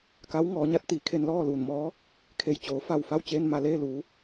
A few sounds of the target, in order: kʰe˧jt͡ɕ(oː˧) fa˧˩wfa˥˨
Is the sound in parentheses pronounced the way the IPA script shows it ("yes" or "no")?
no